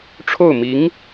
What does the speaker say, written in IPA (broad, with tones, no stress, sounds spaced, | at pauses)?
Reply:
ʈ͡ʂʰ o˥˩ ʊ̯ m i˧˥ ŋ